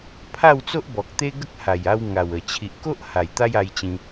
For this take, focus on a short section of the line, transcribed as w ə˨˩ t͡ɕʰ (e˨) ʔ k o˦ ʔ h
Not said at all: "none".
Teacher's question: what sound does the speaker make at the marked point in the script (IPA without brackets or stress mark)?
i˨